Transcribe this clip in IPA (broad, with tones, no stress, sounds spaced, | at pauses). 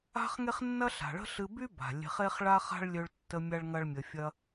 a̤˦ χ ŋ e˦ χ nː ɐ˦ ɬ a̤˨ ɭ ə̤˦ ɬ ɨ˧ b y˦ b a̤˨ lʲ e̤˧ χ e˦ χ ɭ a˦ χ a̤˦ ɭ lʲ ø˧ ɭ tː ə˧ mʲ a˦ ɭ ŋ ɐ˦ ɭ mʲ ə˧ fʲ ɐ˦